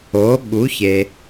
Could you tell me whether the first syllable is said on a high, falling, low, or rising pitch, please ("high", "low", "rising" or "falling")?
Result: rising